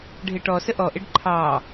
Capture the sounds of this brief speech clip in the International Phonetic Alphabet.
ɖʱ ɪ ʈ ɔ s ə ʔ ɔ ʔ ɪ ɖ ǃʰ ɑ

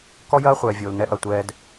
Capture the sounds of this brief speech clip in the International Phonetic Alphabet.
k ɔ˦ j ɐː˦ χʷ ɛː˨ vʲ oː˨ l n ɛ˧ ʔ ɐ˨ tʷ ɛː˧ d

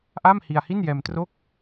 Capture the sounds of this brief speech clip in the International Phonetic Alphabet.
ʔ a˥˩ m h i˧ a̯ h i˥˩ n j ɛː˧ m t r o˥˩ k̚

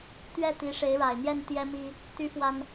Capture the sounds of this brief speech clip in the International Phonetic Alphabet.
t̪ ɥ ɛ˥˩ t̪ i˧˥ ʂ e˧˥ ɪ̯ ɻ a˨˩ ɪ̯ n̪ j ɛ˥˩ n t̪ j ɛ˥ m i˥ | t̪ y˥ f w a˥ n

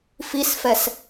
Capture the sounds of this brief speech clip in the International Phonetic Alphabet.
f i s f ɛ s

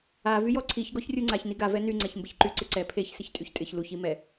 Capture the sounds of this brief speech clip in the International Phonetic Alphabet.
a v y j ɔ ǀʰ i ç ɡ ɔ ç rʲ u ŋ͡ǀ a ç n i ɡ a v ɛ n y ŋ͡ǀ ɛ ç m b ɪ ç ǃ y ǀ ɪ ǀ ɛ pʰ e ç s ɪ ç tʼ y ç tʼ ɪ ç l u ç i m ɛ

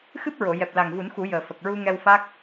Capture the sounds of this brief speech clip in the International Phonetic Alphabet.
x ɨ˦˥ p̚ ɹ o˨˩˨ j ɛ˨˩ p̚ l a˨˩ ŋ v u˨˩˦ n x u˨˩˦ j əː˨˩ f ə˨˩ k̚ ɹ u˧ ŋ ɛ˧ w f a˦˥ k̚

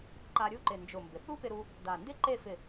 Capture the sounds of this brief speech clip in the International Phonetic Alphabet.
ǃ a˧ ɾʲ u˥˧ ǃ ɪ˧˩ n d͡ʒ ʊ˧˩ m b ɪ˩˧ θ u˥ p ɪ˧ ɾ u˧ | d a˧˩ n d ɪ˥ ǃ e˥˧ f ɪ˧˩

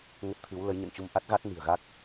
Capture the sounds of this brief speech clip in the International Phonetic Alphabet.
ŋ ə˦˥ t̚ t̪ʰ ɨ˨˦ w l ə˨˦ j ɲ ə̰˧˨ n t͡ɕ u˧ m ʔ a˦˥ t̚ ɣ a˦˥ t̚ n i̤˨˩ ə̯ ɣ a˦˥ k̚

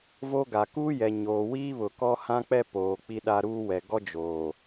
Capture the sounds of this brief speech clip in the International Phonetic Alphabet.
v o˦ ɡ a˨ k u˦ j ɛ˨ ɲ oː˨ w iː˦ β ʊ˨ k ɔ˦ h ã˦ k͡p ɛ˦ p oː˨ k͡p i˦ ɗ a˦ ɾ uː˦ w ɛ˨ ɡ ɔ˦ d͡ʒ oː˨

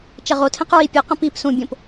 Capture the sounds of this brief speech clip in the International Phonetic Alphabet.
t͡ʃ ɐ ʁ o tʰ ẽ q ɹ i pʲ ɨ q ɐ̃ p i p s ũ bʲ õ p

